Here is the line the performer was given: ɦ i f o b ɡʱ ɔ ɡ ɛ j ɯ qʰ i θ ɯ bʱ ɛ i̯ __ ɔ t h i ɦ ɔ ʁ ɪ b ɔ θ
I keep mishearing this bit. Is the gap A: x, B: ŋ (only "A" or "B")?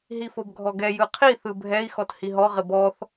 A